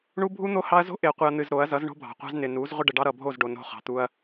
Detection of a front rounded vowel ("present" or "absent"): absent